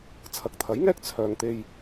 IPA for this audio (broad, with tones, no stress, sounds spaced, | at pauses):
t͡sʰ ɐ˨˥ k̚ t̪ʰ ɐ˨˥ j ŋ ɛː˥ k̚ t͡sʰ œː˨ ŋ t̪ e˧ j